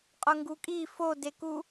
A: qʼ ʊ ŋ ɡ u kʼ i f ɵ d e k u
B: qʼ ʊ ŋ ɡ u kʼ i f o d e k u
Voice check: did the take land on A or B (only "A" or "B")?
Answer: B